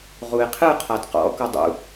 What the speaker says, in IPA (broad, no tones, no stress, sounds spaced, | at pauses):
ʁ u e̯ qʰ ɯ qʰ a d q ɔ̰ k o dˤ ṵ